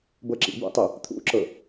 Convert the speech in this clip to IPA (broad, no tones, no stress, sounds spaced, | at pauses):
b ɤ ǁ ḭ b ṵ tˤ e | t̪ʰ ṵ ǁ ɤ